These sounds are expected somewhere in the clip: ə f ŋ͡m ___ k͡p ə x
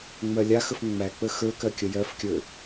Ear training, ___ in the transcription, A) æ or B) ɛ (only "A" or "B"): A